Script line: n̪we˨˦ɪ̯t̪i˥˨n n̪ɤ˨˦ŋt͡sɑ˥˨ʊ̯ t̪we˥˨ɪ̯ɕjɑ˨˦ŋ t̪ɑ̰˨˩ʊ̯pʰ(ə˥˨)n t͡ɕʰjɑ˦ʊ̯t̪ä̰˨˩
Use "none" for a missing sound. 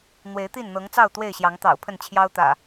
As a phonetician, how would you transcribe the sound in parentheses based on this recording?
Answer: ə˥˨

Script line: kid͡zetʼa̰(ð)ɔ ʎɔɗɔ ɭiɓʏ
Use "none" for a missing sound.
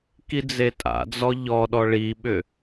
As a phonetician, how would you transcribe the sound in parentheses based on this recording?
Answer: d͡z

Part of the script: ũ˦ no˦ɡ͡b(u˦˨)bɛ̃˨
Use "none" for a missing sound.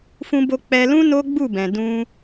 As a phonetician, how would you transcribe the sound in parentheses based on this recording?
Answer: u˦˨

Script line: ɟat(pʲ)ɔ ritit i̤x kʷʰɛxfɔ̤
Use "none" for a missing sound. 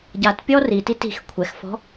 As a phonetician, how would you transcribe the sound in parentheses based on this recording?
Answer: pʲ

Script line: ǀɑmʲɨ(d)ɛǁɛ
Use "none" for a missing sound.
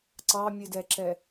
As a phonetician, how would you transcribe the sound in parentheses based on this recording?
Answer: d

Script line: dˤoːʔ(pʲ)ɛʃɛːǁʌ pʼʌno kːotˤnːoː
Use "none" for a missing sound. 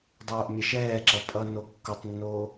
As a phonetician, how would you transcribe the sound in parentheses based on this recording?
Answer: mʲ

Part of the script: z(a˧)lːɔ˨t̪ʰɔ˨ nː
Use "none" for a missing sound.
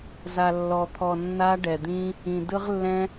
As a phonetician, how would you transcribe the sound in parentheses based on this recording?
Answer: a˨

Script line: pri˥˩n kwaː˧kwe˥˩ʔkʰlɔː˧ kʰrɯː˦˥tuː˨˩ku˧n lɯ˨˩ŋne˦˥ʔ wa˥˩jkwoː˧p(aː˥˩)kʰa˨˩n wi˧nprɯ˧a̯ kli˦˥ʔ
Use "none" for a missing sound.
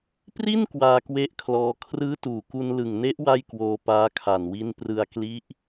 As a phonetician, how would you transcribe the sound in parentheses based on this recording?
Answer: aː˦˥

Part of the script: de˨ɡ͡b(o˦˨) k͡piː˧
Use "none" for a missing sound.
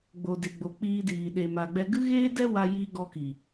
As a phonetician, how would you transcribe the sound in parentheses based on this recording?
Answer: o˨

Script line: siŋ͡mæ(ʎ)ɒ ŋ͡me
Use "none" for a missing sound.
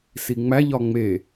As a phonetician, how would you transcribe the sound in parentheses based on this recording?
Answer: ʎ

